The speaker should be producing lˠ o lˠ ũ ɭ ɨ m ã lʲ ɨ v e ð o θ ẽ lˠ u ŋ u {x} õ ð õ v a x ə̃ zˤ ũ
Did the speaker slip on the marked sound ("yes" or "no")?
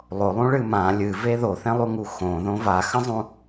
no